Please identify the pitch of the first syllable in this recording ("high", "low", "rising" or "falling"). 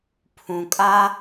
low